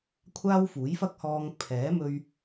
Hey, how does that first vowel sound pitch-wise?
high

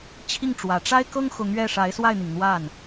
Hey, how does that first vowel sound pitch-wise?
falling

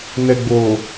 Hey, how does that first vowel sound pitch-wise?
low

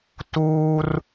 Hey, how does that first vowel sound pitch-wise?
high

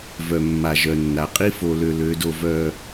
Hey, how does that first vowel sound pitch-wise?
low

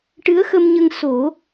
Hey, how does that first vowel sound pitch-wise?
rising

